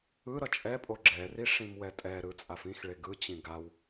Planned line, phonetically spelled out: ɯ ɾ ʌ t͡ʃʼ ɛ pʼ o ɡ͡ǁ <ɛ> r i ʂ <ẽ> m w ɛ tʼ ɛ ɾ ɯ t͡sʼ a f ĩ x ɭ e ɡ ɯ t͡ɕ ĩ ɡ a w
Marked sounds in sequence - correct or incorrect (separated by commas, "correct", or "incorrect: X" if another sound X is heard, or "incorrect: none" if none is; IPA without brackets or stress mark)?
correct, incorrect: ĩ